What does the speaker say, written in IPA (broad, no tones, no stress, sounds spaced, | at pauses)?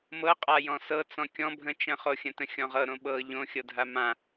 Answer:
m ɤ qʼ a j ɔ̃ s ɤ t͡s ɔ̃ kʲ ɔ̃ bʱ ə̃ t͡ʃ ə̃ χ o xʲ ə̃ t ə̃ xʲ ɔ̃ ʁ ɤ ɾ õ ɓ ɤ ʎ õ xʲ ɤ dʱ a m ã